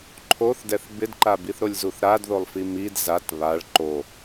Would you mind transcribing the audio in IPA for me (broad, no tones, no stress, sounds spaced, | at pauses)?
ǃʰ o θ d ɛ θ b ɪ d ǃ a b i θ ɾ o lʲ z u θ ɾ a d ð o lˠ f i m i d z a t β a ɭ ǃ o